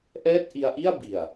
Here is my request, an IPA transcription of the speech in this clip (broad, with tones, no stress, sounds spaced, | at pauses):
ʔ ɛː˥˩ t̚ ʔ i˧ a̯ ʔ i˥˩ a̯ b i˨˩ a̯